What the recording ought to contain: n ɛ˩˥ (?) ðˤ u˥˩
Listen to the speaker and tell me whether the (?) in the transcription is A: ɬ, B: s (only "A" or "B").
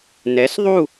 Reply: B